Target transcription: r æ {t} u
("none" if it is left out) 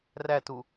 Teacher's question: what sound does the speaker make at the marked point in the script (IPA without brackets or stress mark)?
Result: t